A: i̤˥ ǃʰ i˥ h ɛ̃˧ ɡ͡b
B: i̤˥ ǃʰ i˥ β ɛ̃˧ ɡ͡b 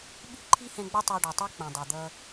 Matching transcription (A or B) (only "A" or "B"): A